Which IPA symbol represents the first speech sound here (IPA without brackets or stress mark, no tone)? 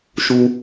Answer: ʃ